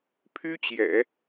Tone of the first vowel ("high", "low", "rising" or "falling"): high